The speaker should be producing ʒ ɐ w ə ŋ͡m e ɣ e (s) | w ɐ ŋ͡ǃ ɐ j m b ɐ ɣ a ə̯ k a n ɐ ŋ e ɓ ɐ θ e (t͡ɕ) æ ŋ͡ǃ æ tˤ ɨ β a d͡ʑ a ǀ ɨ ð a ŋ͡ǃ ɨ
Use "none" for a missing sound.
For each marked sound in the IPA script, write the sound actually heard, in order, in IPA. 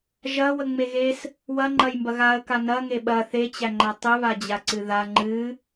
s, t͡ɕ

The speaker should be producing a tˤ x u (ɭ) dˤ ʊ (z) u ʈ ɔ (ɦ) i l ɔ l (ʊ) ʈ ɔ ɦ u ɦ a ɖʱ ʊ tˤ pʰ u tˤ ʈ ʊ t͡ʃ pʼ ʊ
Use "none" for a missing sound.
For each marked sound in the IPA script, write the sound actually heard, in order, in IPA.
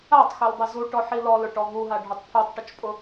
l, z, ħ, ʊ

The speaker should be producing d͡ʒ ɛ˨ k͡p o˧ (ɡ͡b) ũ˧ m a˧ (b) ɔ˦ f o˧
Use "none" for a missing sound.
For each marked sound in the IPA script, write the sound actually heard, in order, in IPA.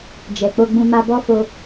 ɡ͡b, b

